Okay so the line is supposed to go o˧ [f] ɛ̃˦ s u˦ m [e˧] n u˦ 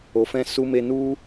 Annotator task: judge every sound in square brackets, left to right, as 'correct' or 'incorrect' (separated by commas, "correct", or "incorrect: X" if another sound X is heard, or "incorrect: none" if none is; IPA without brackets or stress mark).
correct, incorrect: e˦